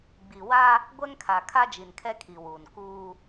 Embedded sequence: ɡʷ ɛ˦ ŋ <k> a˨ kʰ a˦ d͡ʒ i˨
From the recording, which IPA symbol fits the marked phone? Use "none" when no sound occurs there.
kʰ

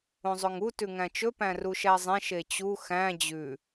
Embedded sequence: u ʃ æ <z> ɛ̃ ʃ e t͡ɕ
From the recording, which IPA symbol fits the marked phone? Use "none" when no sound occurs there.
zˤ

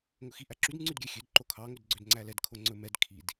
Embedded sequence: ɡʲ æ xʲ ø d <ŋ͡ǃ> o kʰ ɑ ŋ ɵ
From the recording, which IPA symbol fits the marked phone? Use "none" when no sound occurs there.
ǃ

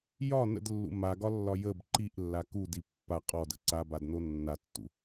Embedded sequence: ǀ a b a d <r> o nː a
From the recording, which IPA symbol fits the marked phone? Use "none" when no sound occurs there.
n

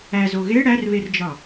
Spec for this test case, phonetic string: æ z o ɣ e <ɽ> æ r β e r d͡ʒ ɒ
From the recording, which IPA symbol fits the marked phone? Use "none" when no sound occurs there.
ɽ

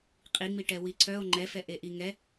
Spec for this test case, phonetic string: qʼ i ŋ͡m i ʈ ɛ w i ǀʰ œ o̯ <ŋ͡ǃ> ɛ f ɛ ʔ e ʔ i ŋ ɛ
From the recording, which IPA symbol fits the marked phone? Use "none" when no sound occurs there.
ŋ͡ǃ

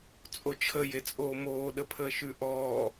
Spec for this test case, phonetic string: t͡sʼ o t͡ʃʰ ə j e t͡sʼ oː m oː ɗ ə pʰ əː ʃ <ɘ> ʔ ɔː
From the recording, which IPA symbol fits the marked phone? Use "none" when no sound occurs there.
ʉ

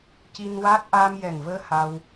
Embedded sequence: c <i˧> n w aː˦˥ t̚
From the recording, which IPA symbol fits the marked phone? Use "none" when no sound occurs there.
i˧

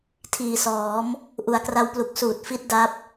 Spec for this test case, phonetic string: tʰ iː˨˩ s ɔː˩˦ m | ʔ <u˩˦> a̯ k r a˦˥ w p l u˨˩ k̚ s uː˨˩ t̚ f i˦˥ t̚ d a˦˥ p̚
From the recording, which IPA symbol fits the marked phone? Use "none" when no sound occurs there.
u˩˦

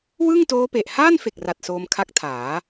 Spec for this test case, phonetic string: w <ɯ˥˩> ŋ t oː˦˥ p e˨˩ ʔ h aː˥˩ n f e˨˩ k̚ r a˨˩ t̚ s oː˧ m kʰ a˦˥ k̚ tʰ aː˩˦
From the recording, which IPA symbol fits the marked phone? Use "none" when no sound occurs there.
ɯ˥˩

